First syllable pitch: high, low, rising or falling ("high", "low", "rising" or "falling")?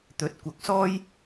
rising